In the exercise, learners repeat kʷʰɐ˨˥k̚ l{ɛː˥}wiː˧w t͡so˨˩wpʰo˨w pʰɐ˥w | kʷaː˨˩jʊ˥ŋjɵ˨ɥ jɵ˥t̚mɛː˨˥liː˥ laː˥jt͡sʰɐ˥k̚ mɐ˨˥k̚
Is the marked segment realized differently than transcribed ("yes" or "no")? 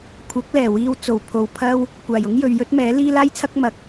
yes